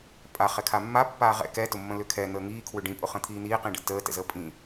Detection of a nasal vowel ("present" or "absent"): present